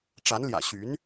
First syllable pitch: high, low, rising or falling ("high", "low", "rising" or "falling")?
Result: rising